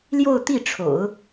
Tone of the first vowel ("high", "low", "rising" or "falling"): falling